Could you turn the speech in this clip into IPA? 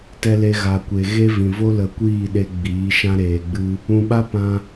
t ɛ˧ l e˧ ɣ a˨ kʷ e˨ ɣ e˦ v ĩ˨ v o˦ l ə˧ kʷ iː˦˨ ɗ e˧ ɡ͡b iː˨˦ ʃ ã˦ ɾ eː˧ ɡ͡b ɨ˦ | ũ˨ ɓ a˦ p ã˧

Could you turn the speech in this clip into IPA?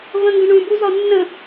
v ə̃ ŋ ɡ ə̃ ɳ ũ b u z ɒ nː ə̃

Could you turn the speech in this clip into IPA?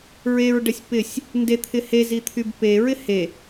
ɹ e ɹ ɖ ə sʲ p ɪ sʲ | n d e t̪ʰ ɪ h e z i t̪ʰ y b p e ɹ ɪ h e

